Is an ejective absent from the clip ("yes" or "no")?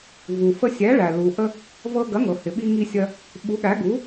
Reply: yes